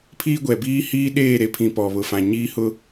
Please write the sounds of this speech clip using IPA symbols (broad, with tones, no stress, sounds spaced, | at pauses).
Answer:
pʰ iː˦ ɡʷ ɛ˨ b iː˦ h iː˦ ɗ eː˦˨ ɾ e˨ pʰ ĩ˨ p ɔ˨ β ʊ˨ f ã˨ ɲ iː˦ h ʊ˦